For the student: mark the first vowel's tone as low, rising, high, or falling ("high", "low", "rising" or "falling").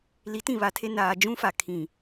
rising